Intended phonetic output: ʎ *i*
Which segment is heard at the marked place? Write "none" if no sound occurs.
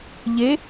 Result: e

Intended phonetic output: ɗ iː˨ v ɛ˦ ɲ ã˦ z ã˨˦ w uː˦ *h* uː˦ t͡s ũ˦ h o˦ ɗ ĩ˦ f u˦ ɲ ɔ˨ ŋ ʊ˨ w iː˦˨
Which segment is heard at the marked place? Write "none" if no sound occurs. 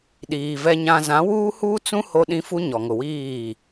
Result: h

